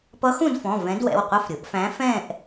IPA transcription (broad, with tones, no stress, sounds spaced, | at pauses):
p ʌ˧˥ x ũ˥˧ d f ɔ̃˩˧˩ v ɛ̃˧˥ d w ɛ̰˩˧˩ w qʷ ʌ˥˧ f ɾʲ ʊ˩˥ ʔ f æ̃˧˥ f ɛ̃˥˧ ʔ